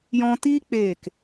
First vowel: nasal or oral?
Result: nasal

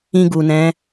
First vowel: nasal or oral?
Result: nasal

